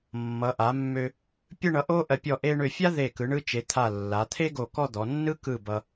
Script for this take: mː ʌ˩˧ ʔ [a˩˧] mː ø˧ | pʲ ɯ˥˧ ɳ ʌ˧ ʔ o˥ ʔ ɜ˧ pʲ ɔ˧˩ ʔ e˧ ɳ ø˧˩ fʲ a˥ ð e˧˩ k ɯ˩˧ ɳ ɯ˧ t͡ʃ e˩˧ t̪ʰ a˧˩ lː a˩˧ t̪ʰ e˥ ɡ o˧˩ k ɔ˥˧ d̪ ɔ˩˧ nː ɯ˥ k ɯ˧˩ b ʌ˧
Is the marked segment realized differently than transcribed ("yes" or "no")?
no